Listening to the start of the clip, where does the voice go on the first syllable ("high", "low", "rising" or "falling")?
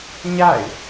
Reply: falling